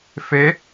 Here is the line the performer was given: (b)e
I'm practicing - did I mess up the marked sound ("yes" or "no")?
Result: yes